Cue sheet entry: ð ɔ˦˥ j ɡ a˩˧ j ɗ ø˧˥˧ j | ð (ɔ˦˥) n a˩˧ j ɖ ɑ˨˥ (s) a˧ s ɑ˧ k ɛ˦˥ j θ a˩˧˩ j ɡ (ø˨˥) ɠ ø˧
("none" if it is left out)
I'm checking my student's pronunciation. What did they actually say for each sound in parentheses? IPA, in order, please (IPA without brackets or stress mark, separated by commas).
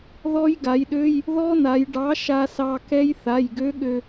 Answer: ɔ˦˥, ʃ, ø˦˥